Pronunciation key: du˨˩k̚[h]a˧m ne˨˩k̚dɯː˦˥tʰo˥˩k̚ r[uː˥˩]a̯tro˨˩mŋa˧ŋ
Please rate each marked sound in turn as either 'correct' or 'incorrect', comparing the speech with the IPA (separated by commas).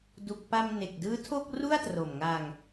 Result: incorrect, incorrect